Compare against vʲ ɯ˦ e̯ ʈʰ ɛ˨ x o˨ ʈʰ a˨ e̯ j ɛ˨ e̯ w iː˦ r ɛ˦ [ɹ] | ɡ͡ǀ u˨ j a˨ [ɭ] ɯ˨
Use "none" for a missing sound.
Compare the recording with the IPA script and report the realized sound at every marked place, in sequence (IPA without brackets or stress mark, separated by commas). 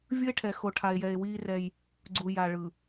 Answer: j, ɭ